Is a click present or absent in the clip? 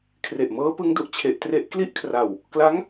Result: absent